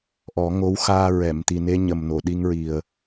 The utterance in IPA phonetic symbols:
ʔɔ˨˩˦ŋo˧˥wxaː˧ ɹɛ˨˩˨mt̪i˨˩ne˧ ɲə˨˩mno˨˩˨ ɗi˧ŋɹi˨˩ə̯

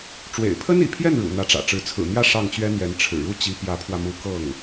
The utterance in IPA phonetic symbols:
ʈ͡ʂwḛ˨˩ɪ̯pʰə˥nḭ˨˩pʰjɛ˥˩n ɻṵ˨˩ n̪ä˧˥ʈ͡ʂä̰˨˩ʈ͡ʂɻ̩˧˥ t͡sʰɹ̩˨˩n̪jä˥˧ ʂɑ˥˩ŋt͡ɕɥɛ˥n̪jɛ˧˥n ʈ͡ʂʰɻ̩˨˩ɻu˥˩ t͡ɕi˧˥pjä˧˥pʰwä˧mu˧˥ kɤ˥˩ŋ

